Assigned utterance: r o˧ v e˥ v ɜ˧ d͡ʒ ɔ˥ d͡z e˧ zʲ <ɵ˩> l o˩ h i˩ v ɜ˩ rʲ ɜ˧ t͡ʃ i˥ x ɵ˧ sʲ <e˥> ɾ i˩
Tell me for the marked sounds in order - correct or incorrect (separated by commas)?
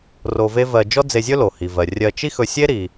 incorrect, correct